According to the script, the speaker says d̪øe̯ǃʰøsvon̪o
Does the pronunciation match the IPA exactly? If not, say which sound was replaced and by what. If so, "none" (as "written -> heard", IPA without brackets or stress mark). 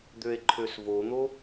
none